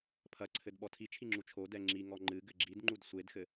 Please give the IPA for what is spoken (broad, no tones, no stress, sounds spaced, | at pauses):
pʰ ɐ ǀʰ ɘ d ɓ ɔ tʰ i t͡ʃʰ i ŋ͡ǁ u t͡ʃʰ o d ɛ ŋ͡ǁ i ŋ ɔ ŋ͡ǃ ɨ ɡ ɘ ɡ͡ǁ i d ŋ͡ǃ u d sʷ e d x ɘ